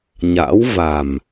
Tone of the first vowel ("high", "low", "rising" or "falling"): rising